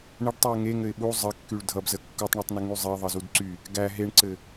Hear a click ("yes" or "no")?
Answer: yes